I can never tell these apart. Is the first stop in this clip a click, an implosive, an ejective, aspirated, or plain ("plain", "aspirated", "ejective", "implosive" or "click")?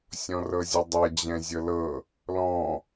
plain